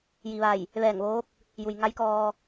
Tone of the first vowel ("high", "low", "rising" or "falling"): low